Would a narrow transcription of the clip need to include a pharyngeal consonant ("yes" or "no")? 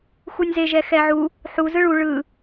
yes